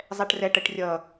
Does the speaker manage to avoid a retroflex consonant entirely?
no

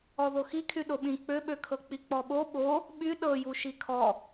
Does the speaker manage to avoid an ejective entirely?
yes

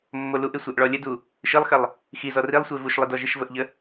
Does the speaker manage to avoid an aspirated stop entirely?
yes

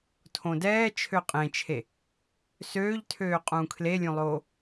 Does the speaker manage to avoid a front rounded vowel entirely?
no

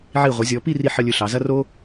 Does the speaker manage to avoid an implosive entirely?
yes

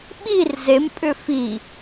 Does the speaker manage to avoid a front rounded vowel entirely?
no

